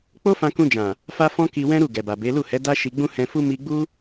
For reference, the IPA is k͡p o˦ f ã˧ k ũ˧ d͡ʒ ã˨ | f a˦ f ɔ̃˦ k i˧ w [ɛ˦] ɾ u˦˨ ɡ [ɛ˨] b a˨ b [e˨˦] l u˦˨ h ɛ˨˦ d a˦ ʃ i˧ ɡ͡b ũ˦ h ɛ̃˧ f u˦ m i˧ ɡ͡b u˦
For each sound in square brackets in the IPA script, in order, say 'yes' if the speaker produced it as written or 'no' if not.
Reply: no, yes, yes

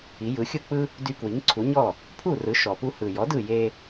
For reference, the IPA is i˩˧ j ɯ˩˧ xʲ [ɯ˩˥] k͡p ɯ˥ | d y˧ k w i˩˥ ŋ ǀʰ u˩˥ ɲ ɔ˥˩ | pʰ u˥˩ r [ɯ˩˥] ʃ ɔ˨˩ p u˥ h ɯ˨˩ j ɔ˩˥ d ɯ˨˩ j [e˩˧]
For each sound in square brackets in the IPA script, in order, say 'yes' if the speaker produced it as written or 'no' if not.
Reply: no, yes, no

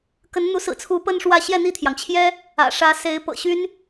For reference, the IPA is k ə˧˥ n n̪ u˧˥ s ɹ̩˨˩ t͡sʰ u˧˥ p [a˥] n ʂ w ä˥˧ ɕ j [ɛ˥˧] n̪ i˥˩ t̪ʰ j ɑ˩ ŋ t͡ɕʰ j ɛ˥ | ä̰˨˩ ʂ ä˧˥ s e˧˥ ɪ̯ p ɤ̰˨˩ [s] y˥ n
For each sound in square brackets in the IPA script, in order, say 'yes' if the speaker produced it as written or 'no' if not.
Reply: no, yes, no

